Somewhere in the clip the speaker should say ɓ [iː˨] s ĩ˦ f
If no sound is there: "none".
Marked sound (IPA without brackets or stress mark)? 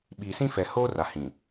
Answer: iː˨